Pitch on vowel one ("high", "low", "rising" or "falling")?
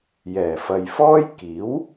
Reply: low